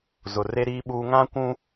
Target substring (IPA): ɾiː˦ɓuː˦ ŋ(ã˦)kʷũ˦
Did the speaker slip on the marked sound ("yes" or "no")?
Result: no